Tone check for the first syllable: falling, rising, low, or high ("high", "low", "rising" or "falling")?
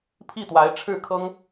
falling